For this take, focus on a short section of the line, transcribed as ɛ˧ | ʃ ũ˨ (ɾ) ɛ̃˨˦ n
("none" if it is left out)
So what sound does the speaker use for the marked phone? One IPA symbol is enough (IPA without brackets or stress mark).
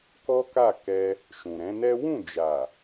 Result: ɾ